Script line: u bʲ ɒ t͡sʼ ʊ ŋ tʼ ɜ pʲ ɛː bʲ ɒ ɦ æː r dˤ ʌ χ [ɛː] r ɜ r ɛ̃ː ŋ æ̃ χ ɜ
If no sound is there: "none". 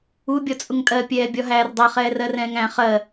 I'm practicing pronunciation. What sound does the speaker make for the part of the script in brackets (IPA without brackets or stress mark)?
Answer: ɛː